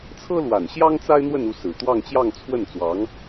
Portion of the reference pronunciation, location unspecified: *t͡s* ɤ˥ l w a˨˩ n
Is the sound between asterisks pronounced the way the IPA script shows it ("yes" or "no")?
no